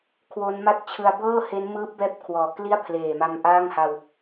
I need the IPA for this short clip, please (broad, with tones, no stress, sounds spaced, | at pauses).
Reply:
kʰ w o˦˥ n m a˥˩ t̚ t͡ɕʰ ɯ˧ a̯ b ɤː˥˩ h e˦˥ n m ɯː˦˥ p̚ b ɛː˦˥ p̚ kʰ w ɔː˨˩ k l i˥˩ a̯ pʰ l eː˨˩ m a˧ m ʔ aː˥˩ ŋ h a˧ w